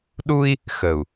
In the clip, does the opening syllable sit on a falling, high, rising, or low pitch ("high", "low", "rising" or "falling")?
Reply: high